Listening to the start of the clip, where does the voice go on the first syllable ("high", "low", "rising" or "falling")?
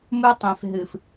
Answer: high